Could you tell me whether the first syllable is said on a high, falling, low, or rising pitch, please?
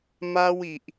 high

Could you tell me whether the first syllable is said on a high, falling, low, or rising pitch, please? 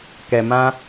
low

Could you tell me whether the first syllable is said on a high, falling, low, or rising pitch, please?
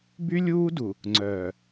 high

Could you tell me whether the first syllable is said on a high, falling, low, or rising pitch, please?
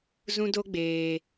high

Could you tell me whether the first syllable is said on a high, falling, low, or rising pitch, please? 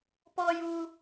high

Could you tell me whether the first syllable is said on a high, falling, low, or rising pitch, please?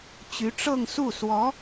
rising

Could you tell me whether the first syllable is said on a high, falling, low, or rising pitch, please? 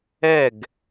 falling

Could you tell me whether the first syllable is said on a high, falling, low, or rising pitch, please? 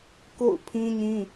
falling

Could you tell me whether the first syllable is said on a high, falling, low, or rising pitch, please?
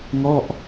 falling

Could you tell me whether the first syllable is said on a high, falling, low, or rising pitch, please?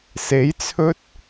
rising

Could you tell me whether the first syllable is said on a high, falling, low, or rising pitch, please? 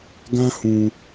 high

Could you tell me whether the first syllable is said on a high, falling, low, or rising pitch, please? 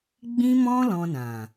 high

